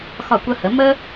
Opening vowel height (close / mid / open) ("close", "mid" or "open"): open